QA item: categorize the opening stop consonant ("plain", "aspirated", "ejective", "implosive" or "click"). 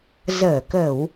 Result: plain